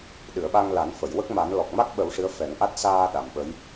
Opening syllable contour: low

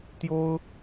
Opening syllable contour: high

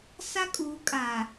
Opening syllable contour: high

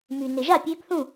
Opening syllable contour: low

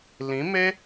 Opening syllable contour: rising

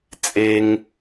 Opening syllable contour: high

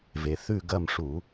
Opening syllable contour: low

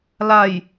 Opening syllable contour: low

